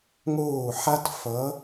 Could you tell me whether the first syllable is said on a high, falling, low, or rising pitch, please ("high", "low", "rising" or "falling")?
falling